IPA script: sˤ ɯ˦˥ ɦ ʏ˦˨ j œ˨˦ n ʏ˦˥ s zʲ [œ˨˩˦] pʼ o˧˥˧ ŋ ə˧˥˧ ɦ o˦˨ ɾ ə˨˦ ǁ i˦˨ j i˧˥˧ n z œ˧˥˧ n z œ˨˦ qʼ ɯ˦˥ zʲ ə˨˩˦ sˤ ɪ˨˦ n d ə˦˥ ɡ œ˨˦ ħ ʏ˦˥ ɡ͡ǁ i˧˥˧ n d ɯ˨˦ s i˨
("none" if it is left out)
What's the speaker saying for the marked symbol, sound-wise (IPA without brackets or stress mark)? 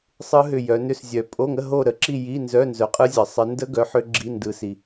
œ˨˩˦